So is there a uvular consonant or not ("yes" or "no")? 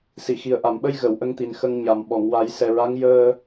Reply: no